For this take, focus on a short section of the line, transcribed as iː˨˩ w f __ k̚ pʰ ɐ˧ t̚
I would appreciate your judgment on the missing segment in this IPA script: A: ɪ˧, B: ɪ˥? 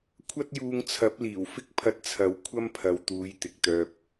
B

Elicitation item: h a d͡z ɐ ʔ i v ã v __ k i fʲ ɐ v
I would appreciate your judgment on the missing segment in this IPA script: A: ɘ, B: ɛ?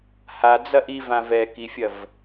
B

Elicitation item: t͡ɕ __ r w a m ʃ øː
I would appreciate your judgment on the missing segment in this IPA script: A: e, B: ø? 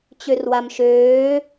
B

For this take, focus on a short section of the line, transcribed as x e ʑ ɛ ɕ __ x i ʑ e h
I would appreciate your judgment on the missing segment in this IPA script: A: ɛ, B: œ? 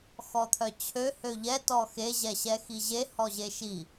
A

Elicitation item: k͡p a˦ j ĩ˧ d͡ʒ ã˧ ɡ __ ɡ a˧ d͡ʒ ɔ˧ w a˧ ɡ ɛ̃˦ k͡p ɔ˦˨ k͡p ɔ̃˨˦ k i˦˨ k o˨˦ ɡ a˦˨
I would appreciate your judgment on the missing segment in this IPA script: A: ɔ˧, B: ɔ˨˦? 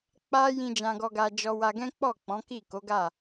A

